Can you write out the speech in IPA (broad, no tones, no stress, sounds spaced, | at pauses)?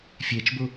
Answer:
fʲ ɛ t͡ʃ b o